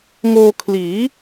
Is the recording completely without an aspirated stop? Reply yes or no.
no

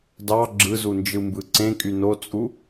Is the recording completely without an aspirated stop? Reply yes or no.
yes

